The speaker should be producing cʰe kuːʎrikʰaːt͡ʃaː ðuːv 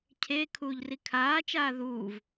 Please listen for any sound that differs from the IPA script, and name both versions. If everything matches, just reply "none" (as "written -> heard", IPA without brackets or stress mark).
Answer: k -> kʰ